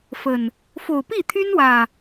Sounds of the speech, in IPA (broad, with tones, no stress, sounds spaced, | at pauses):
f ə˨˩ n | f o˨˩ ʊ̯ p i˥˨ t̪ʰ y˦ n w ä˨˩